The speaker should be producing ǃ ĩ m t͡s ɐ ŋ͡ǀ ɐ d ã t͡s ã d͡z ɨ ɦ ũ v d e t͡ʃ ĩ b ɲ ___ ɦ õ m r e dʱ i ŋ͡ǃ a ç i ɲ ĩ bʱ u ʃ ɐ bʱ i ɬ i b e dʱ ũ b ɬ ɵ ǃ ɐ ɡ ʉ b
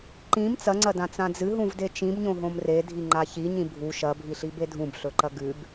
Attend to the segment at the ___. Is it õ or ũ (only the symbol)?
õ